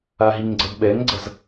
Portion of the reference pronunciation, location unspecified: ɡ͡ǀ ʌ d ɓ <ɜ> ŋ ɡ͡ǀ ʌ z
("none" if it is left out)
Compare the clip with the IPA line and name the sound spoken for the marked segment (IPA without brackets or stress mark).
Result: ɛ